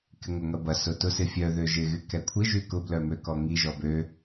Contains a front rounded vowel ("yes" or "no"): yes